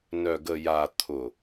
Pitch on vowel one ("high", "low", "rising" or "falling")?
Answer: low